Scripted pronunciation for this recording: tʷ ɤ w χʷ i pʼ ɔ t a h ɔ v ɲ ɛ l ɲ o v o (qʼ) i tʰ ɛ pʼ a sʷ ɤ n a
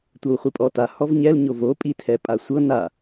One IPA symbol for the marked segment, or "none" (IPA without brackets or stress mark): pʼ